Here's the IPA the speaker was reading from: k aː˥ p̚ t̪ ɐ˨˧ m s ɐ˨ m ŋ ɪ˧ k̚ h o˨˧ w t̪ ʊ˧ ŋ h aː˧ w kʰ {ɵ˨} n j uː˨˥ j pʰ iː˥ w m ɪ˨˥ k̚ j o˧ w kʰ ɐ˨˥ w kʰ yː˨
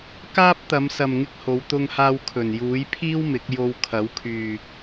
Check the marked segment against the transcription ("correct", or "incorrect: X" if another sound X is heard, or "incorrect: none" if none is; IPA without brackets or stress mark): incorrect: ɵ˨˩